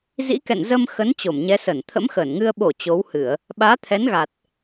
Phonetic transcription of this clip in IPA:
zḭ˧˥kɛ̰˧˨n zə˧mxə˨˦n t͡ɕo˧˩mɲɛ˨˦ sə˧˩n t̪ʰə̰˧˥mxəː˧˩nŋɨ˧ə̯ ɓo˧˩ t͡ɕo˨˦whɨ˧˩˨ə̯ | ɓaː˨˦t̪ʰɛ˨˦nɣa˨˩t̚

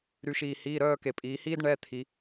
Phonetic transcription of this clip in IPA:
ɾy˩˧ʃiː˩ hiː˩˧˩ɾœː˦˨ ke˩pʼiː˩˧hiː˥d ɳɛ˩˧˩ t̪ʰi˩˧

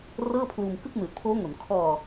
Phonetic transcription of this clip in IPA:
rɤː˥˩pʰluː˧m kɯ˥˩k̚nɯː˨˩t̚pʰoː˦˥ŋo˩˦n kʰɔː˧

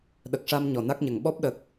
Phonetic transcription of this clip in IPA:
ɗə˨˩k̚ʂa˧m ɲɔ˨˩na˦˥k̚ɲə˨˩ŋ ɓɔ˦˥p̚ɗəː˨˩k̚

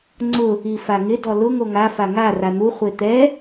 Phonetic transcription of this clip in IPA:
ŋ͡ǀʊ | ifaŋɪ dɔlʊ ŋoŋa faŋa ran̪u χʷet̪ɛ

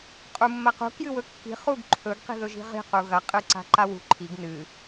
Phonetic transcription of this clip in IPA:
qʼumːɐqṳ kjɨwɵkːi̤ χuɡǃʰɵɡ qi̤ðɵʒi̤ʁi̤ quɣɐ qʼɨǀa̤ǃawṳ ǃʰiɡ nɨ

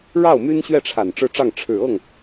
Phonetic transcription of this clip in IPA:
ɻɑ˥˩ʊ̯my˥nɕɥɛ˥˩ʈ͡ʂʰa˨˩n ʈ͡ʂɻ̩˥˧ʈ͡ʂɑ˥˩ŋ ʈ͡ʂʰɻ̩˨˩ ɤ˥˩ŋ

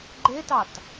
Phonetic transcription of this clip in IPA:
ɡ͡ǃetɑt

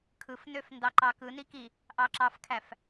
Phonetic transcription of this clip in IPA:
kʰɯfnøf ndɑǃɑkɯni ki | ʔɑǁɑfkʰæf

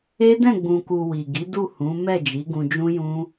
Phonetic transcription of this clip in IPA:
e˦dɛ̃˦˨ɡ͡bũ˨ku˨ wi˨ɡi˨˦ du˦˨hũ˨˦ mɛ˦˨d͡ʒi˨˦ɡũ˧ d͡ʒũ˦jũ˦

